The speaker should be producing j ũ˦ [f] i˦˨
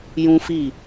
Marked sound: correct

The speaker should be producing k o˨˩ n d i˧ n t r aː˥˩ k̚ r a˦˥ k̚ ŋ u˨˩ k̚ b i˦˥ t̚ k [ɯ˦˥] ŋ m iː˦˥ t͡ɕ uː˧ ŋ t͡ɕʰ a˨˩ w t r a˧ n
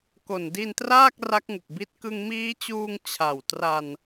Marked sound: incorrect: ɯ˧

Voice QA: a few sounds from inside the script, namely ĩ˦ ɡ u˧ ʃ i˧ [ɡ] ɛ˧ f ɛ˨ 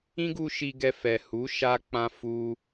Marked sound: correct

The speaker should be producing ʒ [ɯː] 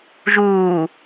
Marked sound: incorrect: uː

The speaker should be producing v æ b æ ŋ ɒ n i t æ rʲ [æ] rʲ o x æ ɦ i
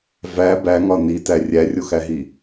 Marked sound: correct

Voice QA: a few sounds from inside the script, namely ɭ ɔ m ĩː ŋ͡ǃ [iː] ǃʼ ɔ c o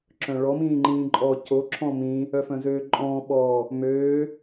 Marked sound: incorrect: ĩː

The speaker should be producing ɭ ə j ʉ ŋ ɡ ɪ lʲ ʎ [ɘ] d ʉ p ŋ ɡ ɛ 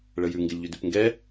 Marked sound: incorrect: ʉ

